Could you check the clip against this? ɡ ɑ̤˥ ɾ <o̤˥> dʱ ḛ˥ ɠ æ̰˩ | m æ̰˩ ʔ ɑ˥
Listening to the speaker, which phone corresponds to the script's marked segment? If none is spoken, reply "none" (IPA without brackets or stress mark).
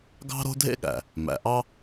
o̤˥